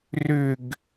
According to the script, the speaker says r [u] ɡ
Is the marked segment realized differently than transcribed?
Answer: yes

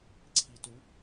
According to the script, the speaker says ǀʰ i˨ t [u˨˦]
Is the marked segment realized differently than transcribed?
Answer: no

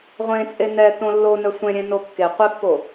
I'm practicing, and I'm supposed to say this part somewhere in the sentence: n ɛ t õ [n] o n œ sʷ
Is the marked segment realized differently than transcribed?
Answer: yes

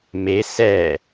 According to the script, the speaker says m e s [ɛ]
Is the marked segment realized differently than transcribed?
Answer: yes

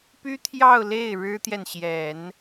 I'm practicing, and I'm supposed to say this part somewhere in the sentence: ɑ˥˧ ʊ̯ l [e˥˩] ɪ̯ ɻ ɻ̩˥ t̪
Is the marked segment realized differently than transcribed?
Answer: no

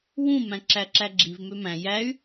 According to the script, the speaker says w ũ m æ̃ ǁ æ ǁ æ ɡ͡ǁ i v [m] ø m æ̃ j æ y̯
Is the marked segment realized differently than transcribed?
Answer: no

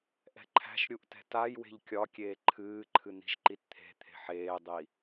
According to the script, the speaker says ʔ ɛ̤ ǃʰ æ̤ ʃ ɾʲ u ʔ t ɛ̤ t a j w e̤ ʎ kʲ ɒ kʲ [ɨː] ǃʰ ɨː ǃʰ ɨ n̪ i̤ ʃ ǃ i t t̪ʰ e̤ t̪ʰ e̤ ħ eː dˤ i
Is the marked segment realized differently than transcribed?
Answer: yes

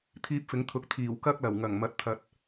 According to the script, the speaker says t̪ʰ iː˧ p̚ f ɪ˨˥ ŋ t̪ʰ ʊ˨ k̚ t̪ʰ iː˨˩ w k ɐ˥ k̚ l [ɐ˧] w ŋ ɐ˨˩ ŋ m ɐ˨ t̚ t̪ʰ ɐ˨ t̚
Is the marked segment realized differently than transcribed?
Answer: yes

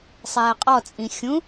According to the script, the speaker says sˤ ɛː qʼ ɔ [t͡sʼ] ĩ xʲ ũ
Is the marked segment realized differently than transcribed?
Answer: no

